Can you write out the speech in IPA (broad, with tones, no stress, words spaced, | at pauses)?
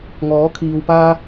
ŋɔː˨˥kʰiː˨wpaː˥